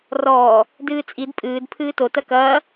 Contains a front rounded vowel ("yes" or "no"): no